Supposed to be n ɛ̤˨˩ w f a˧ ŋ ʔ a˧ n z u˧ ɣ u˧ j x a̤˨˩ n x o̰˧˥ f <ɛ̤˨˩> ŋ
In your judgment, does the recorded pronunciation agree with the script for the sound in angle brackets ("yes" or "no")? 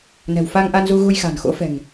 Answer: yes